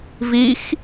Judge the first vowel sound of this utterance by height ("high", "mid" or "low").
high